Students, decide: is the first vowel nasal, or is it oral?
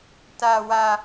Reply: oral